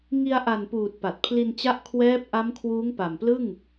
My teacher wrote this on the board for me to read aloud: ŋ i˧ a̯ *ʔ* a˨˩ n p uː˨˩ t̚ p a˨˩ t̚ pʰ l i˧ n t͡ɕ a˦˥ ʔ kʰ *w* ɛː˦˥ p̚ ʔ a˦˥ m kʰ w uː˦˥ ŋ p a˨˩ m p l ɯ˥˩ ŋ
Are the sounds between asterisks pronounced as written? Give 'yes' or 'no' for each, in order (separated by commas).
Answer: yes, yes